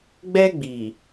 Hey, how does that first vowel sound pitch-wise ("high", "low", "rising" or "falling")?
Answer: high